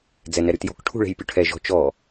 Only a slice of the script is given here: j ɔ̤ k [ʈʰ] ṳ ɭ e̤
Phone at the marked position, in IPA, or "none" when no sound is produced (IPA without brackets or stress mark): ʈʰ